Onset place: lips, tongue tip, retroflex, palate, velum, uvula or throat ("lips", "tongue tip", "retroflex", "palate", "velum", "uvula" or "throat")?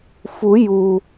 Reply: lips